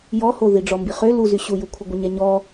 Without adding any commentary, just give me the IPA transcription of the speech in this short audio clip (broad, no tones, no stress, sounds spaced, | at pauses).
j ɔ h o ð i ɖ͡ʐ ɔ m b i χ ø l u z y ɕ u j u kʷʰ ə ɡʷ ə ɲ ɛ ɲ ɔ